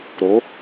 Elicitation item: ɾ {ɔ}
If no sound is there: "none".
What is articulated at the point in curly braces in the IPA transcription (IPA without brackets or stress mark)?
o